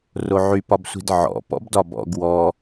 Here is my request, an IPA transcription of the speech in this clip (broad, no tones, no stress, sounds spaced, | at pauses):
r o ʕ y p ɒ b sʷ i̤ d ʕ ɔ̰ p ɔ̰ b d ɒ b ɔ̰ ɡ w ɔ